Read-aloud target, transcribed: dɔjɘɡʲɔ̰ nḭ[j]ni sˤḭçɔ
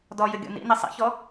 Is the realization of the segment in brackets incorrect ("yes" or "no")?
yes